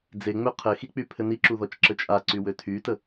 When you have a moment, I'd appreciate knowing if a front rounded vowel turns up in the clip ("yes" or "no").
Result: yes